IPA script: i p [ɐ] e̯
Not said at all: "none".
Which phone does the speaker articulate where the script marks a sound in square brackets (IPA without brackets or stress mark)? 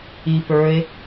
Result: ə˞